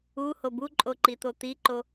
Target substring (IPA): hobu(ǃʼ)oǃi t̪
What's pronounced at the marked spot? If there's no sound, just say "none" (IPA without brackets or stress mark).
ǃʼ